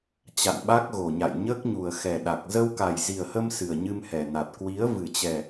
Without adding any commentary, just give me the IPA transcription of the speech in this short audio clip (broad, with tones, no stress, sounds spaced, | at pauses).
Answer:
t͡ɕ a̰˧˨ n ɓ a˦˥ k̚ ɣ o˨˩ ɲ a̰˧˨ j ɲ əː˦˥ k̚ ɲ u˨˩ ə̯ x ɛ˨˩ ɗ a˨˩ k̚ z ə˧ w k a˨˩ j z i˨˩ ə̯ h ə˧ m s ɨ˨˩ ə̯ ɲ ɨ˧ m h ɛ˨˩ n a˨˩ t̚ k w i˨˦ ə̯ v ɨ˨˩ t͡ɕ ɛ˨˩